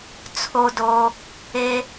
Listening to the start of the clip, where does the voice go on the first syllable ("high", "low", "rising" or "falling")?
high